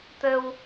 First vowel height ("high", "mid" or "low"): mid